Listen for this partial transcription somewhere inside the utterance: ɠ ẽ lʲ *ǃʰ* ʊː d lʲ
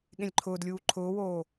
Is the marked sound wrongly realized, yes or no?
no